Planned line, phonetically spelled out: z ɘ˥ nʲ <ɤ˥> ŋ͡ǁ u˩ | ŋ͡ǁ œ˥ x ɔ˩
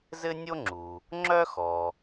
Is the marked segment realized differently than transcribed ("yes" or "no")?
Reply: yes